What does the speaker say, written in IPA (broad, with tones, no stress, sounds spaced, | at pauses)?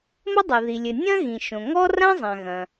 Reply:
m ɐ˥ dˤ ɘ˩ ð i˩ lʲ ɘ˩ nʲ ɐ̃˥ ɣ ĩ˩ ʃ õ˩ ŋ ɔ˥ r ã˥ zˤ ã˩ ɣ ɐ̃˩